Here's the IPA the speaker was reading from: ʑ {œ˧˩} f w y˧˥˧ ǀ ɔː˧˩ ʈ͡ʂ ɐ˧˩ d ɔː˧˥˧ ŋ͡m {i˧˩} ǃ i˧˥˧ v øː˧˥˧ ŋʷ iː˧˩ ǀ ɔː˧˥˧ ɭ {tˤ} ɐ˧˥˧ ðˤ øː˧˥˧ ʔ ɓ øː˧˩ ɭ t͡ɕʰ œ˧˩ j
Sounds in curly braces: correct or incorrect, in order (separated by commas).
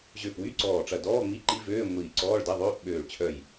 incorrect, incorrect, incorrect